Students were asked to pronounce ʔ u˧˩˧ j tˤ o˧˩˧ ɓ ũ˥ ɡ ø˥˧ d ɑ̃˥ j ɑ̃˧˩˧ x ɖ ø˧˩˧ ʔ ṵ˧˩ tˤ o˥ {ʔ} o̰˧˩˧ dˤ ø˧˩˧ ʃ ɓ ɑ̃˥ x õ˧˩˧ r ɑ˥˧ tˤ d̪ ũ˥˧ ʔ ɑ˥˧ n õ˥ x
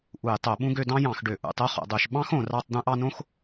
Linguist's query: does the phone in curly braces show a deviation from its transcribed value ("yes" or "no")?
yes